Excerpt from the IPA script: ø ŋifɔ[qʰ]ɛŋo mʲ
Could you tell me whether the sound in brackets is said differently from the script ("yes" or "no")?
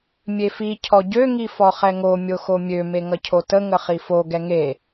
yes